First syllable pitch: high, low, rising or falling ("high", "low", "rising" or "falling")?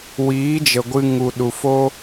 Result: rising